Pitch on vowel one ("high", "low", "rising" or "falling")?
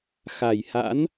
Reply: low